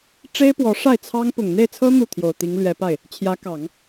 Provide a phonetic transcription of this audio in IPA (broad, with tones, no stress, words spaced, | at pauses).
ʈ͡ʂe˥ɪ̯pwɔ˧˥ ʂa˥˩ɪ̯t͡sʰɑ˥ŋ pʊ˨˩ŋn̪e˥˩ɪ̯t͡sʰɤ˥ n̪u˥˩ t̪ʰjo˨˩ʊ̯t̪i˧˥ŋlɥɛ˧˥pa˥˩ɪ̯ | t͡ɕʰjä˧˥kɑ˨˩˦ŋ